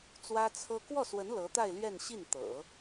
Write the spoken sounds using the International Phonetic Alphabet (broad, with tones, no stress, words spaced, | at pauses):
t͡swä˥t͡sʰɤ˥ kwɔ˥˩swə˧˥n lɤ˧˥t̪a˥˧ɪ̯ lɥɛ˥˧nɕi˥˩n t̪ɤ̰˨˩˦